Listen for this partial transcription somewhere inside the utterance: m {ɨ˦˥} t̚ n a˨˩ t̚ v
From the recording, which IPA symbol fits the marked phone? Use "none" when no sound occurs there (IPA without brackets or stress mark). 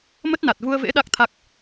ə˦˥